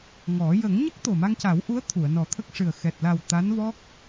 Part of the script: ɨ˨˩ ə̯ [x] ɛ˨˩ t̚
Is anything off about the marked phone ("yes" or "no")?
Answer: no